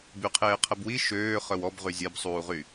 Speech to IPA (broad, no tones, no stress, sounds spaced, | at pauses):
b y qʰ eː qʰ ə b w i ʃ øː χ œ w ɔ b ʁ y zʲ ɛ b sˤ uː ʁ y